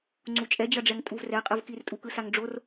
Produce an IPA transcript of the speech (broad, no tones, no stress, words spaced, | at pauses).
ŋ͡ǀut͡ʃʼɛd͡ʑʌɖ͡ʐɛŋ tʼuvrɛqʼɯv kirtʼukɯsaŋ ɖ͡ʐor